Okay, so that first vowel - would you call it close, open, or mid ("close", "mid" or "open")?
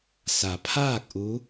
open